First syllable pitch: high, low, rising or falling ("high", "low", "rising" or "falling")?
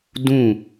falling